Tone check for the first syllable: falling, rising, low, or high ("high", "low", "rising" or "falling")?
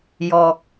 low